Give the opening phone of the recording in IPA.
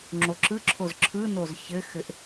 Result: ŋ͡ǁ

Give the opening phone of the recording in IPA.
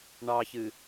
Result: ɳ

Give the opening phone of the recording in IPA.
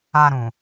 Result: a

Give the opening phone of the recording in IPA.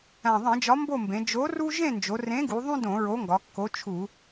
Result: æ̃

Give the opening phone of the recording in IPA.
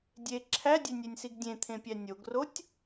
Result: dʲ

